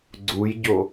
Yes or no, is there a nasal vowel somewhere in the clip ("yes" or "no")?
no